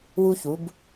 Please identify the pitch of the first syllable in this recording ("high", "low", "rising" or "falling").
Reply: high